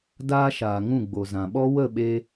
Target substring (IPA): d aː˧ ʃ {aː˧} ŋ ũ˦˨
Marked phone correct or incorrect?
incorrect